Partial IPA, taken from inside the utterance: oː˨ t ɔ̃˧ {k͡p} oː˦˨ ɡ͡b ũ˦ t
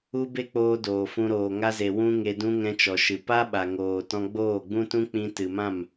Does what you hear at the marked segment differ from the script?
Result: yes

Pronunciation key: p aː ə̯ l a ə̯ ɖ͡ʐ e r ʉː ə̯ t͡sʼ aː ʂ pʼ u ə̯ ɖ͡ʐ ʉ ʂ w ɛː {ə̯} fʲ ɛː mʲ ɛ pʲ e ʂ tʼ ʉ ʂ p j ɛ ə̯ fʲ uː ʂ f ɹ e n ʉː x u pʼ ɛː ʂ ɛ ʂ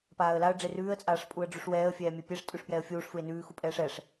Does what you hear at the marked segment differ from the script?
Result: no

